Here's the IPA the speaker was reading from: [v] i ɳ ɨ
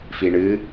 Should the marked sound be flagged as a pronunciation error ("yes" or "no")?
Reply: yes